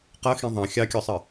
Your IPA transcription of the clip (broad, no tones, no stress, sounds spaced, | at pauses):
q ʌ x ĩ ðˤ ɑ̃ xʲ ɑ kʲ ɔ sˤ ə